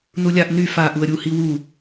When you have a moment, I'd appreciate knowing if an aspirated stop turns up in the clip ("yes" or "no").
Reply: no